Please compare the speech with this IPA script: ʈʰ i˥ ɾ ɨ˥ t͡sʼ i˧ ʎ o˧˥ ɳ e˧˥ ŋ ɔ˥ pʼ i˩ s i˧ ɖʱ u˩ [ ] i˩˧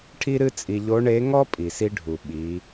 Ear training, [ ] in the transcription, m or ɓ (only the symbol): ɓ